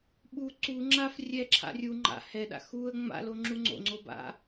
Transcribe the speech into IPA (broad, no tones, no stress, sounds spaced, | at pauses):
ɓ u ǀ u ŋ͡ǁ a f rʲ ɛ ǁʰ a̰ rʲ u ŋ͡ǃ a̰ h ɛ ɗ a̰ x u ə̯ ŋ͡m a̰ l o ŋ͡ǁ u ŋ͡ǀ o̰ ŋ͡ǀ o b a̰